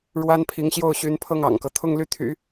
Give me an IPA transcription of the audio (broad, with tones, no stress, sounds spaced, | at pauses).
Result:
ɻ w a˥ n pʰ i˧˥ ŋ ɕ j o˥˩ ʊ̯ ɕ y˧˥ n pʰ ɤ˥˩ ŋ ɑ̰˨˩ ŋ k ɤ˦ t̪ʰ ʊ˥˧ ŋ l y˥˩ t̪ʰ y̰˨˩˦